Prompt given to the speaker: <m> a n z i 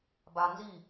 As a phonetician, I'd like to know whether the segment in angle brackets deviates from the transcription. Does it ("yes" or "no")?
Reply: yes